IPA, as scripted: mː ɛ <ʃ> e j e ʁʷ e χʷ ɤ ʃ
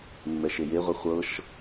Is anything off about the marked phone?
no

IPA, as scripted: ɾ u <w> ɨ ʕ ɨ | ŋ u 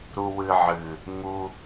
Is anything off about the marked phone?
no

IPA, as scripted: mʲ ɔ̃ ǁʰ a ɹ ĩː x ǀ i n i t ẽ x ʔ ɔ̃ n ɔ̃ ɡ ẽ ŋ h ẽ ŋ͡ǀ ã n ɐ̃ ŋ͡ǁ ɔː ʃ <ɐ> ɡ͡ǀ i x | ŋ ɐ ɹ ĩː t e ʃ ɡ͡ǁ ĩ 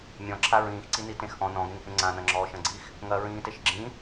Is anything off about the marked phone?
yes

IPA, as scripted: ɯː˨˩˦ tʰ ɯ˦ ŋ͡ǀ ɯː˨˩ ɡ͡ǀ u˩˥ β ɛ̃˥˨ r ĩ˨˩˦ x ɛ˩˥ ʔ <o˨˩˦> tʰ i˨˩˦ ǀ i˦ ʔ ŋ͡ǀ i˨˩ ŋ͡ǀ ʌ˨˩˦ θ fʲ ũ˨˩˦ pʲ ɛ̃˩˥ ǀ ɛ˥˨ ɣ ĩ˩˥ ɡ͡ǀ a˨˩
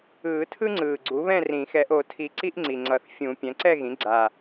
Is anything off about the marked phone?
no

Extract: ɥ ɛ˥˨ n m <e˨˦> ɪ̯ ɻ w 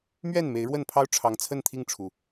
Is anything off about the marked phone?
no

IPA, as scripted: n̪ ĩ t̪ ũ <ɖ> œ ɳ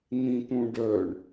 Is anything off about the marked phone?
no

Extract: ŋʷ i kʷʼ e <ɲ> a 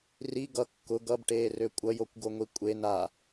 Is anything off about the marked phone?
yes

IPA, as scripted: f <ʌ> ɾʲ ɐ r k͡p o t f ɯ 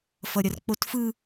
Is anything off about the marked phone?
no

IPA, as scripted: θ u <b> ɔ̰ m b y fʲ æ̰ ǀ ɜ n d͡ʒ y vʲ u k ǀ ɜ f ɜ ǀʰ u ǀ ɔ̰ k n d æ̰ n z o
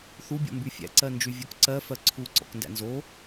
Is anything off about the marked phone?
yes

